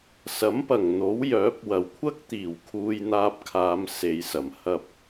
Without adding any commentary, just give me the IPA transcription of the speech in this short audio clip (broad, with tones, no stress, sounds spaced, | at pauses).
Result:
s ɐ˨˥ m p ɐ˨˩ ŋ n̪ o˨˥ w j œː˨˥ p̚ w ɐ˨˩ w kʷʰ ɐ˥ k̚ t̪ iː˨˩ w kʰ uː˧ j n̪ aː˧ p̚ kʰ aː˨˧ m s e˨ j s ɐ˨˩ m h ɐ˧ p̚